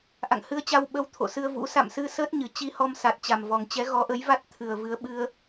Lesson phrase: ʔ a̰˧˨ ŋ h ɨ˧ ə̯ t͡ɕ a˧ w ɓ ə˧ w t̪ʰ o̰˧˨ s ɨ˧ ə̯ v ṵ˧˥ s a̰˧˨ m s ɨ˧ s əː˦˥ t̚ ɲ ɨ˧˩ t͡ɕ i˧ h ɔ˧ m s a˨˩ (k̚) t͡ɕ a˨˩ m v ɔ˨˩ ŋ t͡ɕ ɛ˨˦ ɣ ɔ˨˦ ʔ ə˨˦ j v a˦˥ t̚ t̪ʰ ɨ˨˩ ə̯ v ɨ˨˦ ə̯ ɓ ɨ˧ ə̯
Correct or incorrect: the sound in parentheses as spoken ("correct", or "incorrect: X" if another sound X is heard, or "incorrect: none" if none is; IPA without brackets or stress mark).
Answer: incorrect: t̚